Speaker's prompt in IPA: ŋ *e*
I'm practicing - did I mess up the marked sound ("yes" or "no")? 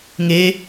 no